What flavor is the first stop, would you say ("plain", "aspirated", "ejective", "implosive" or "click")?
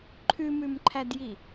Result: click